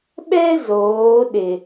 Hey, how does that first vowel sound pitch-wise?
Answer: high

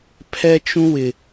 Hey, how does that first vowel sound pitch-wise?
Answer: high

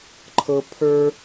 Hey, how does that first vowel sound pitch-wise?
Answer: high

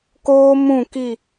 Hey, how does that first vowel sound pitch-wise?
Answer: high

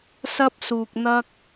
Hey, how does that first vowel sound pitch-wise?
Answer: high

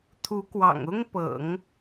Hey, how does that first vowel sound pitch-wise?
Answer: rising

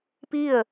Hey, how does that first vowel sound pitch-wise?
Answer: falling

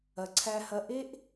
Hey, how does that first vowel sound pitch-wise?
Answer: low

